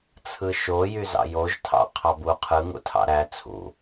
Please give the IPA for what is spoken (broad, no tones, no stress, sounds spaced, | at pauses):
t͡sʰ ɯ ʃ o j y z ɑ̰ j o ʒ tʰ ɑ̰ qʰ ɑ b u qʰ ɯ ŋ ṵ tʰ ɑ̰ ɾ æ t͡sʰ ṵ